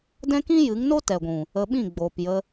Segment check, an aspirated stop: absent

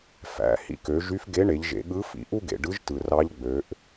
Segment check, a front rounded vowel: present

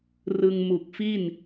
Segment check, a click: absent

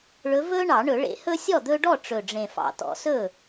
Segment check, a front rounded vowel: absent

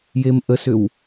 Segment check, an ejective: absent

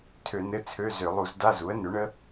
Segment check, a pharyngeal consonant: absent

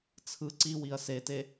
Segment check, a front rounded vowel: absent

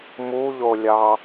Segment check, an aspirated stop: absent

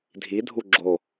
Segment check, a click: present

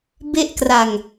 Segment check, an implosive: absent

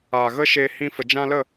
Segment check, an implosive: absent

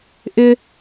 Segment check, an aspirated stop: absent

